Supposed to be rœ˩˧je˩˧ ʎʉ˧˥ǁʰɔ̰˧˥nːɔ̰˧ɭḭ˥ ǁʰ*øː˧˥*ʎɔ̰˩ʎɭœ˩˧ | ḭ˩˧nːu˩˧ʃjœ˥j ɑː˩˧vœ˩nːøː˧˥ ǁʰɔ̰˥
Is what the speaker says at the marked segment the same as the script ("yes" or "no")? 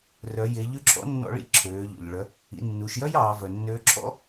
no